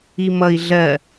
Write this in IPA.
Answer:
i m ʌ i̯ ɮ ɜ

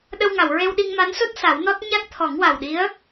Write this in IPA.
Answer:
ɗ ə˧ w ŋ a˨˩˨ w ɹ e˧ w ɗ i˧ ŋ m a˧˥ n s o˦˥ t̚ s a˨˩˦ w n ɔ˦˥ t̚ ɲ a˦˥ k̚ t̪ʰ ɔ˨˩˦ ŋ w a˨˩ w ɗ i˧˥ ə̯

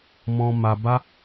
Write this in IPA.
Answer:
m ɔ̃˨ m a˨ b a˧

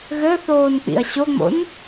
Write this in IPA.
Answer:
ɣ ɘ θ oː n k͡p ḭ ɐ̯ ɕ o ŋ͡m o̰ n

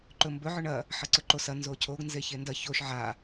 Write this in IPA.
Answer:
ǃ ɵ m b ɵ ʕ ɵ ɳ ɐ | ħ ɐ ǀ ɵ ǃ o s ɐ n z o cʰ o ɡ n z e ç e n d ɐ ç o ʃ ʕ a

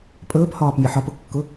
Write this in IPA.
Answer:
pʼ ɵː p h ɒː p mʲ ɛ ħ ɒ p ʊ kː ʊ

